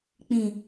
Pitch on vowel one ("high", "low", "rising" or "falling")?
low